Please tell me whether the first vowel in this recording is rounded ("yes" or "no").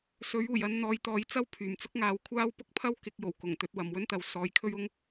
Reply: yes